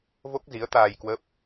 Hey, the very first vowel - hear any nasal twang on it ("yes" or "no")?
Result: no